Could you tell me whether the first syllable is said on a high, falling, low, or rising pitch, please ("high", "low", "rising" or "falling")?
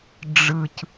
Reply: low